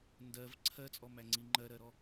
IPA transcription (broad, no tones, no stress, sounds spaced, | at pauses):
n d ɜ v ǀʰ ɜ t͡sʼ ɔ m æ ŋ͡ǀ i ŋ͡ǃ ɜ ɾ ɜ ɾ ɔ